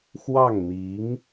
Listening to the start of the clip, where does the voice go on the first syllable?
falling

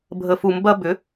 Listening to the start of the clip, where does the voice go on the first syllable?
low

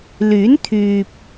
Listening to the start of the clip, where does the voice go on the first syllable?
rising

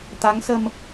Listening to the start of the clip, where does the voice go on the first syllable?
rising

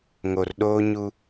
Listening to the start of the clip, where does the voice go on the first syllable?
low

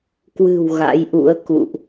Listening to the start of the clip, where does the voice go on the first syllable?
low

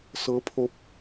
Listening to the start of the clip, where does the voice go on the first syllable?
rising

